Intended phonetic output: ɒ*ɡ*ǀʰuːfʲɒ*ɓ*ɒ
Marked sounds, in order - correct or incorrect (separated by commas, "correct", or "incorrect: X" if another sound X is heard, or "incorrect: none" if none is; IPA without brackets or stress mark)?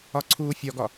incorrect: none, incorrect: ɡ